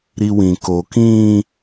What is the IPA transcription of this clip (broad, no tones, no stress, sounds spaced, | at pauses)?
ɾ i w ĩ k o k ĩː